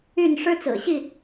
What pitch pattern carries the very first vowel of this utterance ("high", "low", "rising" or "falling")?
falling